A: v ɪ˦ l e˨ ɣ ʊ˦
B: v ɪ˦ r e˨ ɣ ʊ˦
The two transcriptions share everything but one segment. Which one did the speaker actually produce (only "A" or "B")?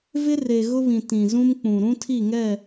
B